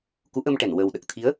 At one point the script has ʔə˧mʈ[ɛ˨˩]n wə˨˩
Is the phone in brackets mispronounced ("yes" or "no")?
yes